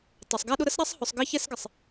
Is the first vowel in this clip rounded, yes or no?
no